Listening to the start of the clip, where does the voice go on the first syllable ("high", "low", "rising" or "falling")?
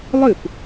falling